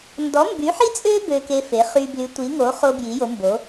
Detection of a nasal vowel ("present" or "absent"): absent